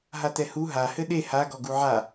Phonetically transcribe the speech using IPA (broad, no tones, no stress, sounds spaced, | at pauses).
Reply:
ɦ a t ɛ h u ɦ a h ɘ ɗ e h a ɡ ɔ ɡ u ʕ a